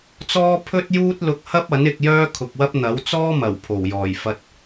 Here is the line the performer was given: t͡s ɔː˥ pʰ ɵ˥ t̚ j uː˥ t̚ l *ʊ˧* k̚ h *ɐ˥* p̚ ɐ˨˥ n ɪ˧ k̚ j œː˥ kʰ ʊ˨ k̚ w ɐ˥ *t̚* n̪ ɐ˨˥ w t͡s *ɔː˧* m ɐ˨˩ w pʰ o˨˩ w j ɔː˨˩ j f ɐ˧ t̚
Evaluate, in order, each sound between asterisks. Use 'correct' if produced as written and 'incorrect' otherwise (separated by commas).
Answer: correct, correct, incorrect, incorrect